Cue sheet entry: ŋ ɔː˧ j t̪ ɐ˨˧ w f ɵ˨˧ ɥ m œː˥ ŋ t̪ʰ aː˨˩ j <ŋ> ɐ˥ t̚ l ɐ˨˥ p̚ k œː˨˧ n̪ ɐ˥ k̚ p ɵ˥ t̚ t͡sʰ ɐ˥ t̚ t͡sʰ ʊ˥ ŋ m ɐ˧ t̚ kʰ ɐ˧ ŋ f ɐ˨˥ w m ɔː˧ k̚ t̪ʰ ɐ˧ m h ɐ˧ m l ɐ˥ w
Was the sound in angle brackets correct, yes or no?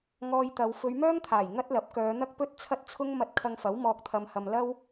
yes